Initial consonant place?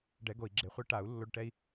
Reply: retroflex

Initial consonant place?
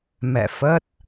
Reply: labial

